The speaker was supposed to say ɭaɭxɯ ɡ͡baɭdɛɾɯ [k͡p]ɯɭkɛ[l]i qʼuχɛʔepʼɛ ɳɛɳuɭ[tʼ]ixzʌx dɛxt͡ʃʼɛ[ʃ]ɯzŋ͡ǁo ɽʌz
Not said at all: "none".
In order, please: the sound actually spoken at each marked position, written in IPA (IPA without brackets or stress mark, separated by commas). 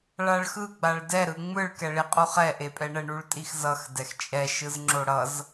ŋ͡m, ɭ, tʼ, ʃ